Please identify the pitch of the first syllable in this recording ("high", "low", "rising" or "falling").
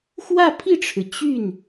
falling